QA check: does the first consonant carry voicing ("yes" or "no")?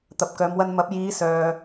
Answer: no